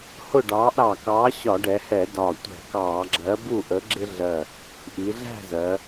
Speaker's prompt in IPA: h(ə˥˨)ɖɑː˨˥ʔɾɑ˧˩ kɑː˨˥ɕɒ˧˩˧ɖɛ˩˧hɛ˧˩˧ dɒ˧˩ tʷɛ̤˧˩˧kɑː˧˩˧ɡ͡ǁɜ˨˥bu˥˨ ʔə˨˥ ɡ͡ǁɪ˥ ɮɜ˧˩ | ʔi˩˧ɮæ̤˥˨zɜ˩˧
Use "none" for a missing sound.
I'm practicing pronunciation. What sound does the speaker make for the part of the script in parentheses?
ʊ˥˨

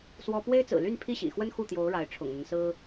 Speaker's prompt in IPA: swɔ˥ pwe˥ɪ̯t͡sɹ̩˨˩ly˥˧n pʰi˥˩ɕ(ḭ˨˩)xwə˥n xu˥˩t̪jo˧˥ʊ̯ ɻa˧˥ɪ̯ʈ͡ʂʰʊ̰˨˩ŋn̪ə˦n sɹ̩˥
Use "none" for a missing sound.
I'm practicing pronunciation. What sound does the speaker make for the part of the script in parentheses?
ḭ˨˩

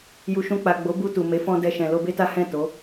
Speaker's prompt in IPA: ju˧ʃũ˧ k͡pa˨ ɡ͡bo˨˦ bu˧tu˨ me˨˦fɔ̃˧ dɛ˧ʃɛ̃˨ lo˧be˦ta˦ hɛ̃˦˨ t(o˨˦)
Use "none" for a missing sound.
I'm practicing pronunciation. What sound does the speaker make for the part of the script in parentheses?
o˨˦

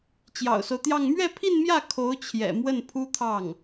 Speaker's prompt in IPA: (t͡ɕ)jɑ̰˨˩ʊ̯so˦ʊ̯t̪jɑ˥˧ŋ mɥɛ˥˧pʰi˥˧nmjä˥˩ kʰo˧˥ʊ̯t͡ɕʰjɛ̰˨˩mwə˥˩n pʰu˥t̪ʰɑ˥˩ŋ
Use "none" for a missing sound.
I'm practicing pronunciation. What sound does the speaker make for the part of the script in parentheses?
t͡ɕ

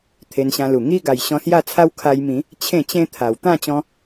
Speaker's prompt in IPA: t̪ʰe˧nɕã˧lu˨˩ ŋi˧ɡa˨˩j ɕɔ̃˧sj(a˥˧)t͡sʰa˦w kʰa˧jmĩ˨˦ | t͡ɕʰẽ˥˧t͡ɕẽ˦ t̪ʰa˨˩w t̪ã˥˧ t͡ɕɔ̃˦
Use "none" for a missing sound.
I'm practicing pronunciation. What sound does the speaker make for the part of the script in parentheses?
a˥˧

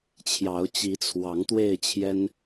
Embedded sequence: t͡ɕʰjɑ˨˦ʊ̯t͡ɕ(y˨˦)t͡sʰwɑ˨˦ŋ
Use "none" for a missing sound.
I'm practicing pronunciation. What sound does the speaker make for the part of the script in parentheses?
i˨˦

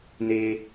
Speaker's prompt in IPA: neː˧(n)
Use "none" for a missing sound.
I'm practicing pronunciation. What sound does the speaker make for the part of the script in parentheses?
none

